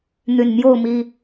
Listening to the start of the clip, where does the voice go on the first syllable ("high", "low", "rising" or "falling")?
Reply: low